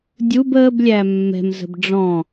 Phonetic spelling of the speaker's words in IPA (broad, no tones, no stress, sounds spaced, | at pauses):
dʲ u b əː b lʲ æ mː ɛ̤ m z ə̤ b ɖ͡ʐ ɔ̃